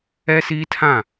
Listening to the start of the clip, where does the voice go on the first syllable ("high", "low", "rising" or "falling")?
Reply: high